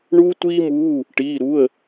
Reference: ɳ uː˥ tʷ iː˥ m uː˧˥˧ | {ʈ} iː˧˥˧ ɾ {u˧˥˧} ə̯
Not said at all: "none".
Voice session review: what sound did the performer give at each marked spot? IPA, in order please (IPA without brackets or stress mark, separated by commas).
ʈ, u˧˥˧